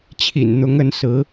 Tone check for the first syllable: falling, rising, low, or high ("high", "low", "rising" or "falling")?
low